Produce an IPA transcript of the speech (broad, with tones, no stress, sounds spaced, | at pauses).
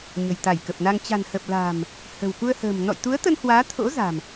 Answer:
ɲ ə̤˨˩ j t̪ a˧˩ j k ə˨˩ p̚ n a˧ ŋ t͡ɕ a̤˨˩ n h ə˨˩ p̚ l a̤ː˨˩ m | h ə̤˨˩ w k u˧ ə̯ h ə̤ː˨˩ m n ɔ̰˧˨ j t̪ u˨˦ ə̯ t̪ ə˧ n h w aː˨˦ t̪ʰ o̰˧˥ z a̤˨˩ m